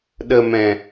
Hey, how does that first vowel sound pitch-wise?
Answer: low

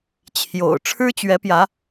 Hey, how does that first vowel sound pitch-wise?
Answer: low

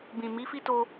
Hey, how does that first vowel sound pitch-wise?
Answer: low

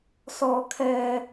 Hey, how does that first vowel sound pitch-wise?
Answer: low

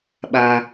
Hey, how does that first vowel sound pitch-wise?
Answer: low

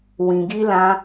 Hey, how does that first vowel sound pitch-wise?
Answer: low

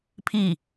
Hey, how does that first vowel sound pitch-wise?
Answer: falling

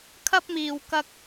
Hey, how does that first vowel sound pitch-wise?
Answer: high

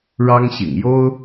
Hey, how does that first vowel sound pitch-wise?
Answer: high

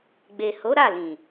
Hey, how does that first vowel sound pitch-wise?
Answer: low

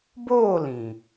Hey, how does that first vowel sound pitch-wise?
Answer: falling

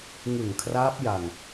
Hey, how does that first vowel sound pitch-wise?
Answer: low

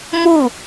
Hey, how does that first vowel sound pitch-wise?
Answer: falling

